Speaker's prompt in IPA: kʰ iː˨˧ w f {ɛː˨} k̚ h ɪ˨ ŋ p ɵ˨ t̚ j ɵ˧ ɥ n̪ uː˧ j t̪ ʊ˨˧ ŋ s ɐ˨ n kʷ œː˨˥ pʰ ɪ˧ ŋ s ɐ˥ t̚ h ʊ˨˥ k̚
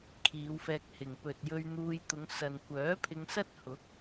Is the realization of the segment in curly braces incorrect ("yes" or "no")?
yes